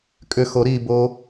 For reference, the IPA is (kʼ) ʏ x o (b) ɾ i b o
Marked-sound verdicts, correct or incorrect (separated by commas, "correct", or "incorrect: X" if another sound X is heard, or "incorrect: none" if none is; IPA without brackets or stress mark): correct, incorrect: none